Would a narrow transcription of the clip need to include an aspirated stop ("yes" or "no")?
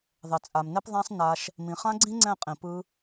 no